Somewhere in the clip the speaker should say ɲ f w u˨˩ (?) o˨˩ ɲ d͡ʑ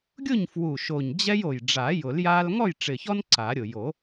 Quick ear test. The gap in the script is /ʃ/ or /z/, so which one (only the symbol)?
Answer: ʃ